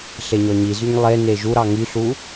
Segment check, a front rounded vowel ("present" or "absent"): present